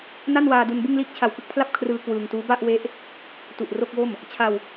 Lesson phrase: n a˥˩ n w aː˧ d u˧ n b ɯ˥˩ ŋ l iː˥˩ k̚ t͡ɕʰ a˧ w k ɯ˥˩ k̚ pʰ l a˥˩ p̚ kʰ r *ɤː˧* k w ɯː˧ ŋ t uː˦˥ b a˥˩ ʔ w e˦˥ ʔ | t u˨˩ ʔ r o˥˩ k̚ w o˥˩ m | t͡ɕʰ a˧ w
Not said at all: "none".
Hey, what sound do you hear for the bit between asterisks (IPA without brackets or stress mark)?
ɯː˧